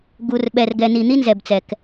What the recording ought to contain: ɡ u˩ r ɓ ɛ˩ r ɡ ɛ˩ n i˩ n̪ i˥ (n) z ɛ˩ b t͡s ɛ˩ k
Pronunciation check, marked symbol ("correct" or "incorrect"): correct